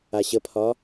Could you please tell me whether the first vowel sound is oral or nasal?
oral